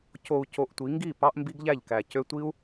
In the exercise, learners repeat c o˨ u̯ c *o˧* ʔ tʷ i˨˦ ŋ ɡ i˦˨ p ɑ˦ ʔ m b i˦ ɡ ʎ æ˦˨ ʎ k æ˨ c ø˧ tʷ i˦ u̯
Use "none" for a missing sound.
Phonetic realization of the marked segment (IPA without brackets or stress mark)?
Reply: o˧